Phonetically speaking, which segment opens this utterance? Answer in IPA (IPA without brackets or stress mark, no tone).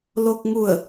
l